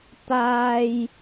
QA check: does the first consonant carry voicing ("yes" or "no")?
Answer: no